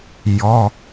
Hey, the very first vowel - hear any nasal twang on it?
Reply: no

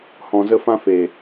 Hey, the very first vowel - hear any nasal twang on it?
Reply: yes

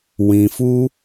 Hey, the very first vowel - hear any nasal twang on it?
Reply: yes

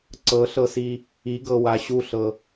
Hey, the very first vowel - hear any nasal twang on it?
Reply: no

